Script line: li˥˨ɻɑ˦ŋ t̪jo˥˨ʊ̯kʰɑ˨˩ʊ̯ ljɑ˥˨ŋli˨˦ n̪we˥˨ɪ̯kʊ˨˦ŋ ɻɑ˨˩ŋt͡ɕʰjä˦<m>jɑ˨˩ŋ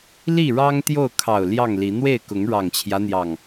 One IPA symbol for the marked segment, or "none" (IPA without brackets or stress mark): n̪